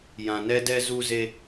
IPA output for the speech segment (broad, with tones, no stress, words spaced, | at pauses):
jã˧nɛ˦ dɛ˧zu˧ze˧